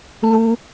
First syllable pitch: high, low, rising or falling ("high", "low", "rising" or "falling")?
high